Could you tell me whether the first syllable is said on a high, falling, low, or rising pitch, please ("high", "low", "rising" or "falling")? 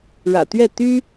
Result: low